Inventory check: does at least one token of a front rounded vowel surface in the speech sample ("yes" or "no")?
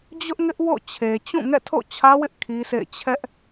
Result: no